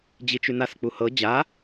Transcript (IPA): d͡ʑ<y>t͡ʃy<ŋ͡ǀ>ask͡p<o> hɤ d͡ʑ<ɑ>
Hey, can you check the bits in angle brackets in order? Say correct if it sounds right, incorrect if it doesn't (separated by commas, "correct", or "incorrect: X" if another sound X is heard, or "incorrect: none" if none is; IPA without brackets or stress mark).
incorrect: i, incorrect: n, incorrect: u, incorrect: a